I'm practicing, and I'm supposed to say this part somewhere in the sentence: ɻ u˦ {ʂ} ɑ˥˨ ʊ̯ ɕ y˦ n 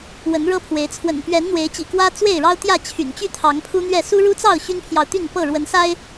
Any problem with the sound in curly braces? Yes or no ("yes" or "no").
yes